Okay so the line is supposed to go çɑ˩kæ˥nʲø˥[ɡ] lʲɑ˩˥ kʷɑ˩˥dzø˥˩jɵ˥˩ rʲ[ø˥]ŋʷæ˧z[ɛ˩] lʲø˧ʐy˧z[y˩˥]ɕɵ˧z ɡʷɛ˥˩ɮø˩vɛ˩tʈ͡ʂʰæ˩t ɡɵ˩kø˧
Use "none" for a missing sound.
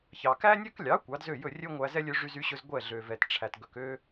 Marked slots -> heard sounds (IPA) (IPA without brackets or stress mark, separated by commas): k, ø˥, ɛ˥, y˩˥